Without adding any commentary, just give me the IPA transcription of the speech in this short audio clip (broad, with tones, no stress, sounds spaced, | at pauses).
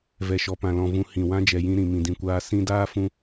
v ɛ˨ ʃ ɔ˨ p ã˨ l ɔ̃˨ v ũ˨ h ĩ˨ w ã˦ d͡ʒ ɛ˨ j ĩ˧ ɾ ĩ˨ m ĩ˨ d ĩ˨ kʷ aː˧ s ĩ˧ d aː˦ f ũ˧